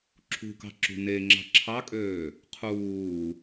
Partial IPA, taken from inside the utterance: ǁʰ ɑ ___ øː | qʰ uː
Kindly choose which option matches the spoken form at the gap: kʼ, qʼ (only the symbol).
kʼ